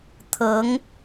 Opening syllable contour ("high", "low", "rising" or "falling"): rising